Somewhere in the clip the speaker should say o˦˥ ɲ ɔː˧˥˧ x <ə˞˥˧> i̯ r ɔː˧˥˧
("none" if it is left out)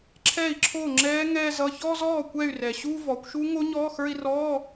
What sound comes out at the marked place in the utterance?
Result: ə˞˥˧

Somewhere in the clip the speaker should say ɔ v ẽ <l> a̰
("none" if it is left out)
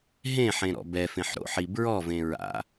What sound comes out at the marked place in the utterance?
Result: ɹ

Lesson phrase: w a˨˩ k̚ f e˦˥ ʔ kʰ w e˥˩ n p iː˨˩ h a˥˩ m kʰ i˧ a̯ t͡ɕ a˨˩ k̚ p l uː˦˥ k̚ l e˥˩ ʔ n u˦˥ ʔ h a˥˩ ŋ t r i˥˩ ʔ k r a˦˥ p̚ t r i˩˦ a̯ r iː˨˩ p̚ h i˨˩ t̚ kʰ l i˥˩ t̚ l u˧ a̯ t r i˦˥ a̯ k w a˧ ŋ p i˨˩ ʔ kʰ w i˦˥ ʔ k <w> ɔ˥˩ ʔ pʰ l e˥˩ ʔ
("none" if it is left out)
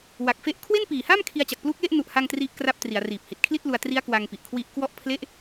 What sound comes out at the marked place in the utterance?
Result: w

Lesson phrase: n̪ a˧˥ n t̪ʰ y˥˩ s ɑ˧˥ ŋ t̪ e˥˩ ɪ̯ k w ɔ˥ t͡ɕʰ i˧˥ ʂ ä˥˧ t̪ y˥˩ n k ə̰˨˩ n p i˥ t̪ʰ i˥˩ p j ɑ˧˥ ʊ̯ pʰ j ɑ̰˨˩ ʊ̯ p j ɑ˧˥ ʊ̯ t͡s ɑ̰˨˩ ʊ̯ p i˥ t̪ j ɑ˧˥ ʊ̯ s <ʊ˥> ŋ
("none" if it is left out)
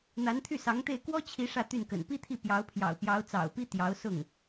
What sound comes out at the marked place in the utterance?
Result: ʊ˥˩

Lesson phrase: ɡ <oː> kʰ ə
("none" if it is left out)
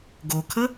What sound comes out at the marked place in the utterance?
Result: o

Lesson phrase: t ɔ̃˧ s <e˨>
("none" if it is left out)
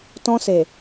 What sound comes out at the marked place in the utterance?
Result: e˨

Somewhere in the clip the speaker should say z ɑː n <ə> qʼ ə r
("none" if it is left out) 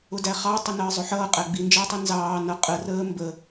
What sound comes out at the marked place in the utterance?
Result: ʌ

